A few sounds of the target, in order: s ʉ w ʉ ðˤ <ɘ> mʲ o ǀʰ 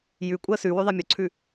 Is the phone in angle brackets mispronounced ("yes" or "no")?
yes